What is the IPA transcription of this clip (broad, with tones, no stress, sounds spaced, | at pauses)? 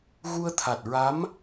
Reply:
ɣ u˧ ə̯ t̪ʰ a˨˩ t̚ ɹ a˧˥ m